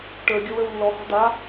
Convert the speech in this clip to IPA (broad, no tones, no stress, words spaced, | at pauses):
ʈə˞ɡʲɔw ə˞wlːɔhɔ̤ d̪a